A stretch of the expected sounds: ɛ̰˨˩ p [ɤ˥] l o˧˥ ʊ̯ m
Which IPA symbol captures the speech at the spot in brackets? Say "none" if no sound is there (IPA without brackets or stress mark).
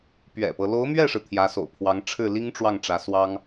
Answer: ɤ˦